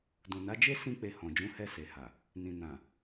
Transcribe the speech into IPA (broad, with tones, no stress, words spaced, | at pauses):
dũ˨na˨˦d͡ʒe˦ sĩ˧ k͡pe˧hɔ̃˨ d͡ʒũ˨˦hɛ˧ se˨ha˨ | nĩ˨nã˨